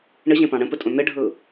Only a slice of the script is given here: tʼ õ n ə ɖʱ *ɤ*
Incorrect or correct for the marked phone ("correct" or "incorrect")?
correct